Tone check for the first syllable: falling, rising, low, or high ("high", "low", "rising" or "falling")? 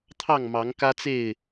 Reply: falling